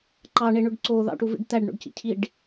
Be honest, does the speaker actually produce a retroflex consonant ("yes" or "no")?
yes